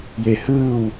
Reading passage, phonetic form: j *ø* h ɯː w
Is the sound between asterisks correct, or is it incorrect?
incorrect